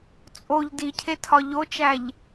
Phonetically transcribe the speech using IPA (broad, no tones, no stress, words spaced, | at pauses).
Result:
t͡sʼoʎ dicʰetʰɒ ʎot͡ʃæʎ